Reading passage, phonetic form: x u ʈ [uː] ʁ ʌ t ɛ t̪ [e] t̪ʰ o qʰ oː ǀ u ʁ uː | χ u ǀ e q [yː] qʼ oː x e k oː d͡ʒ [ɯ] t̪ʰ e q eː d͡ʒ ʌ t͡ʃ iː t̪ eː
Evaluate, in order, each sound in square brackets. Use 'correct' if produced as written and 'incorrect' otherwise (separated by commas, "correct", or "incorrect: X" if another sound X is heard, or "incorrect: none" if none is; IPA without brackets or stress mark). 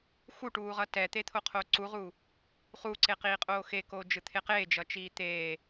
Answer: correct, correct, incorrect: iː, correct